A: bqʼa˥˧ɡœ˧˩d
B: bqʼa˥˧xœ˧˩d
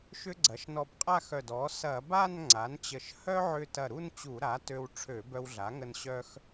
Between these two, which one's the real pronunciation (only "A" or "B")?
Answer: B